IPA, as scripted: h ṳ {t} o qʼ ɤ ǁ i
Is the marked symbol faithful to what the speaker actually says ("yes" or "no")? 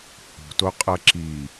yes